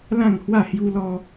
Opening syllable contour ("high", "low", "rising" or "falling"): falling